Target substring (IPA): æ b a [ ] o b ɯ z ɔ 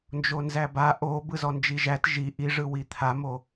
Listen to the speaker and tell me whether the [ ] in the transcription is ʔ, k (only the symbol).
ʔ